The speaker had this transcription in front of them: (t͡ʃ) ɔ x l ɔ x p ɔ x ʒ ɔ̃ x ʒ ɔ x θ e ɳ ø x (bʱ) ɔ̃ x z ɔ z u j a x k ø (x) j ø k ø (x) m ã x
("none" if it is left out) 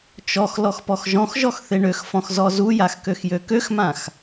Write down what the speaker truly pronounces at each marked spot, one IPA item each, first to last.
t͡ʃ, f, x, x

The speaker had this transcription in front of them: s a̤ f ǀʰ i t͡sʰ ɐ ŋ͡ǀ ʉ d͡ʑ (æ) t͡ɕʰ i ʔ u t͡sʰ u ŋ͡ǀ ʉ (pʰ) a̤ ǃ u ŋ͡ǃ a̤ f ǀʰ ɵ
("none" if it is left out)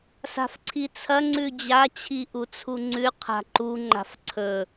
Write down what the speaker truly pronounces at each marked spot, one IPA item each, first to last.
a, qʰ

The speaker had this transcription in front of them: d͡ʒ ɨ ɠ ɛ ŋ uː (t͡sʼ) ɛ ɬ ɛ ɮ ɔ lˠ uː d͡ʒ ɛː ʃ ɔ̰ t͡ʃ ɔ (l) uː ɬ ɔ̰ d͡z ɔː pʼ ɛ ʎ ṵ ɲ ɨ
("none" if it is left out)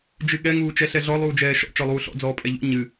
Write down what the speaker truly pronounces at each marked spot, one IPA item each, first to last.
t͡ʃ, lˠ

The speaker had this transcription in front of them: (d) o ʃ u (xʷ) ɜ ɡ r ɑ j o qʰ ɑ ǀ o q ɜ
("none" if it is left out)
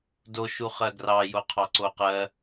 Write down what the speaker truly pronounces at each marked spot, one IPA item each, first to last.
d, χ

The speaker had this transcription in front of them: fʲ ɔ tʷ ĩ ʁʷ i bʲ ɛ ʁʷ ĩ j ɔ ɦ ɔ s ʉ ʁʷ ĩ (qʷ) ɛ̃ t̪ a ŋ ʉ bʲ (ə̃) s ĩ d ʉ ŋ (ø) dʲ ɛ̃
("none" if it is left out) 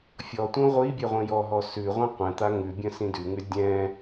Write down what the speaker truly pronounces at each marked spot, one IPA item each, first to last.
qʷ, ə̃, ʉ

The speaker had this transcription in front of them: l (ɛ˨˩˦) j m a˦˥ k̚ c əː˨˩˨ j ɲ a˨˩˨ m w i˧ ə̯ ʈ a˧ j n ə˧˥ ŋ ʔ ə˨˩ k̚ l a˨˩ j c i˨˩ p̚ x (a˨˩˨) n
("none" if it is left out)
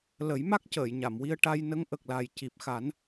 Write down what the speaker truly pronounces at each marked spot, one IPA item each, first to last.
ə˨˩˦, a˨˩˦

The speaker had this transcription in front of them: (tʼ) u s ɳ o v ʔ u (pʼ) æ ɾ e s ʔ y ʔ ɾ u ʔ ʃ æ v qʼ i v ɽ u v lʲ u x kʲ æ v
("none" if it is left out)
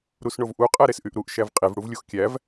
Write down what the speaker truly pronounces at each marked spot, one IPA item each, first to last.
ɾ, qʼ

